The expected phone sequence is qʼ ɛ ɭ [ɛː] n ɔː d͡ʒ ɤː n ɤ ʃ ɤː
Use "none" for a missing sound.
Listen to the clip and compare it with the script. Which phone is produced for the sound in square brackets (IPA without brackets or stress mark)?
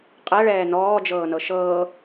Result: ɛː